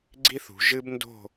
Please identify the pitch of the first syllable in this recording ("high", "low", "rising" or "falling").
high